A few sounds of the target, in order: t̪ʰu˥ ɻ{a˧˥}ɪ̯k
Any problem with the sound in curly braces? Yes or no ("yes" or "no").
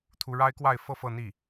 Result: yes